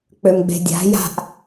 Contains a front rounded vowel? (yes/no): yes